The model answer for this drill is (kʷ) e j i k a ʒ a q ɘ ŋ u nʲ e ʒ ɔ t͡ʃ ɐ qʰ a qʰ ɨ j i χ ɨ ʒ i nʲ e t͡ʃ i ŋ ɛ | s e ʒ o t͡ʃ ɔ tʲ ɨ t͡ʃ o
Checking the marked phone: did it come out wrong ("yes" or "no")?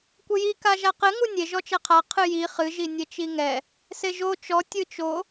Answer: no